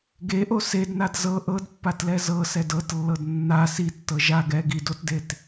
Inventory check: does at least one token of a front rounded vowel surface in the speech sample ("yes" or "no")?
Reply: no